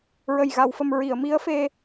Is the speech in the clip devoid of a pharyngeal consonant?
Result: yes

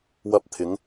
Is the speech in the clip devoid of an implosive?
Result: yes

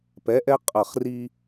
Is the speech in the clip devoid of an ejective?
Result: no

